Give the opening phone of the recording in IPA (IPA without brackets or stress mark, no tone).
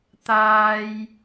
t̪